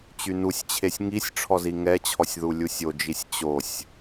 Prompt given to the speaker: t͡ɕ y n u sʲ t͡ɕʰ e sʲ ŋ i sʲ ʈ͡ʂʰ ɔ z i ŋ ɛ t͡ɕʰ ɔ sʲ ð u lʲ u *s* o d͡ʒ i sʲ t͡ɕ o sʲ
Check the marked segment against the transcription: incorrect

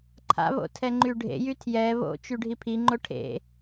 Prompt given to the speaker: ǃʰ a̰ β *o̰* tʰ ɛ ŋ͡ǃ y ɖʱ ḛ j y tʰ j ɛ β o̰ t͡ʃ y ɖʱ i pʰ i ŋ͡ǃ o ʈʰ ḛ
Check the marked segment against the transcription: correct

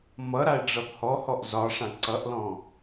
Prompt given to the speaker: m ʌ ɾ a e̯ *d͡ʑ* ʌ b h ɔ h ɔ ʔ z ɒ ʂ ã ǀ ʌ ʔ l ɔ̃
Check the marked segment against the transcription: incorrect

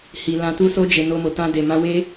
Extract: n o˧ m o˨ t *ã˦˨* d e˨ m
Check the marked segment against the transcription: incorrect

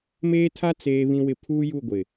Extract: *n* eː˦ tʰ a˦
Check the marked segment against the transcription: incorrect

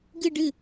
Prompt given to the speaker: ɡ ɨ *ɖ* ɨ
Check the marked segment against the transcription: correct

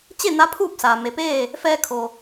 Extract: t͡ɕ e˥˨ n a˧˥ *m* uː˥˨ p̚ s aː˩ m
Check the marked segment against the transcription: incorrect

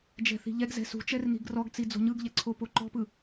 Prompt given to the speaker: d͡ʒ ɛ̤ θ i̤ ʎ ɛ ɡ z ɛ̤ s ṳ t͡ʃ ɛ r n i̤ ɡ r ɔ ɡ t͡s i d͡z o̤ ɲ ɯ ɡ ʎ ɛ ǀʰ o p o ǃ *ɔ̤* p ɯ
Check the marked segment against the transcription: correct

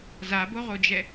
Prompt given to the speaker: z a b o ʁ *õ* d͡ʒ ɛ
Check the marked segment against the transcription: incorrect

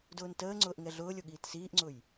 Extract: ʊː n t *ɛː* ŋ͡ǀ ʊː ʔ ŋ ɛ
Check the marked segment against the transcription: incorrect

